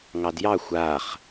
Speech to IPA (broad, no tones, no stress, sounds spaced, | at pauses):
ŋ ɑ d j ɑ xʷ a χ